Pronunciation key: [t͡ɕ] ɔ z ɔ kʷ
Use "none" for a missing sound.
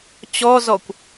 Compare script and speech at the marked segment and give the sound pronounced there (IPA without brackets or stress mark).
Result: t͡ɕ